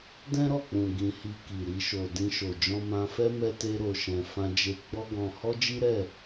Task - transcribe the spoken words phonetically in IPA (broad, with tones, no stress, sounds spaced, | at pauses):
d ɛ̃˦ ɾ ɔ˦˨ k͡p ũ˨ ɡ ĩ˧ h i˧ k i˨ ɾ i˧ ʃ o˨ d ĩ˧ ʃ o˨ d͡ʒ ɔ̃˧ m ã˧ f ɛ˦ m ɛ˦ t e˦ ɾ o˧ ʃ ɛ̃˧ f ã˧ d͡ʒ e˧ ɡ͡b ɔ˦ ɡ ɔ̃˧ h ɔ˦ d͡ʒ i˦ ɾ ɛ˦˨